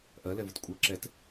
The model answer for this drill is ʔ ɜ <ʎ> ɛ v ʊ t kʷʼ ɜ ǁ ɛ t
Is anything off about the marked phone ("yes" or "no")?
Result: yes